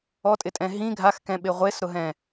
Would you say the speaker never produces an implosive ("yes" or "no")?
no